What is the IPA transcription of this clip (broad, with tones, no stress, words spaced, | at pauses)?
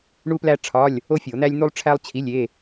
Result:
ɳu˥plæ˥ʈ͡ʂʰɒ˧˥˧lʲ | o˥fʲo˨˩˦n̪æ˥lʲ n̪u˥lˠʈ͡ʂʰæ˥lˠ t͡ɕʰi˧˥˧lʲe˧˥˧